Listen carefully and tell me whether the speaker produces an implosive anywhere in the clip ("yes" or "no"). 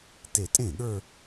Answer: yes